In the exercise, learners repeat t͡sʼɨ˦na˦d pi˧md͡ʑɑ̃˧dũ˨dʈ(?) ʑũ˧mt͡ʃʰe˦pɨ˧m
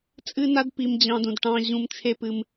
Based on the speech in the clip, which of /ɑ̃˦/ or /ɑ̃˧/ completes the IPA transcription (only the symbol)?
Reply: ɑ̃˧